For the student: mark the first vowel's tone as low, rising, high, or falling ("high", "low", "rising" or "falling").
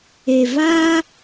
low